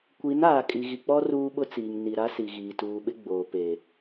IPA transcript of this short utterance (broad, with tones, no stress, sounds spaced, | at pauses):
kʷ i˨˦ n aː˨ kʼ i˨ ɣ i˨ k͡p ɔ˦ r uː˦ ɓ ʊ˦ t͡s iː˨ ŋ n i˨ ɾ a˦ s i˨ ɣ iː˨ t uː˨ ɓ ɪ˦ ɡ͡b oː˨ p e˨